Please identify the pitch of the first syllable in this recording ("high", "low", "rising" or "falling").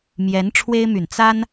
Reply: rising